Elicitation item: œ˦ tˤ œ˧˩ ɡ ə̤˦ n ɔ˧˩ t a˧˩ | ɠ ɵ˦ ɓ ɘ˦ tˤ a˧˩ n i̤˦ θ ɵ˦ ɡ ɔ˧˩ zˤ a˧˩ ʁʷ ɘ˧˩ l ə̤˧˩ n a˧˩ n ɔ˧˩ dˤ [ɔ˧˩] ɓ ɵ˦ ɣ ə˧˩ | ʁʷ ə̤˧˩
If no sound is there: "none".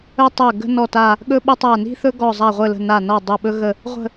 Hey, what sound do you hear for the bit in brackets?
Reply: ɵ˧˩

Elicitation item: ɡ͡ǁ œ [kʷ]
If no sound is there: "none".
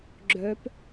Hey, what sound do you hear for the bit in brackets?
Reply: p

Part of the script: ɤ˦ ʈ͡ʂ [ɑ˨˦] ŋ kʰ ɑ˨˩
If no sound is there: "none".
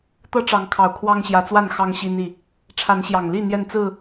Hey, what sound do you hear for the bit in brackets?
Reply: ɑ˨˦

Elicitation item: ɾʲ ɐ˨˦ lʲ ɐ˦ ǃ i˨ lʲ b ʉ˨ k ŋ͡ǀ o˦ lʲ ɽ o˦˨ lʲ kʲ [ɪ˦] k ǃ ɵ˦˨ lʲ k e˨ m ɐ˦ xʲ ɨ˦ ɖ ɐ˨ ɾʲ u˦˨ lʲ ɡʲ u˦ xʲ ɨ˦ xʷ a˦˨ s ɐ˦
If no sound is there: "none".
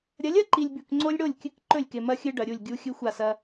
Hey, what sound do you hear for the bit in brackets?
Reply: ɨ˦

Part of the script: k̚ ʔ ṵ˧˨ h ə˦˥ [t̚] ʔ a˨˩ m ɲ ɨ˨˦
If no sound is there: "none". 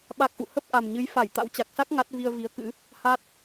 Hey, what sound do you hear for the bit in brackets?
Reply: p̚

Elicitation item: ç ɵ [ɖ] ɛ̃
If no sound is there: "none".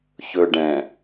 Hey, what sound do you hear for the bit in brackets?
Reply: ɖ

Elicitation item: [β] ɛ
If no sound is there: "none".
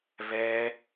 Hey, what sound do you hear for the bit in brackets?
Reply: β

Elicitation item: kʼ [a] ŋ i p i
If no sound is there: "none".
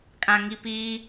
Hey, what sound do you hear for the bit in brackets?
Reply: ã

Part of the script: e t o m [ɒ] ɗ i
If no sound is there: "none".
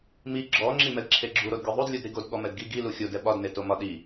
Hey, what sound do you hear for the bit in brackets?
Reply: ɒ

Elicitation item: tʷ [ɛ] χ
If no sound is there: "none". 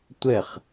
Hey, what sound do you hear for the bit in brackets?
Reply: ɛ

